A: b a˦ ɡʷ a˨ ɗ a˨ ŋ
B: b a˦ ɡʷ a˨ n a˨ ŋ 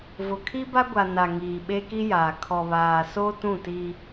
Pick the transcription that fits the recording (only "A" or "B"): B